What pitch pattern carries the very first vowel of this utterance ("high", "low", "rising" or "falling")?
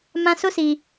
high